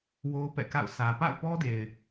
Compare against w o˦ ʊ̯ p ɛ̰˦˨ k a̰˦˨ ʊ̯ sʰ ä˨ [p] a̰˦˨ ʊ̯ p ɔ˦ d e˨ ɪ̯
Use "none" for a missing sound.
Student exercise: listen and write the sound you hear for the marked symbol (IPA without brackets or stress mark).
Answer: p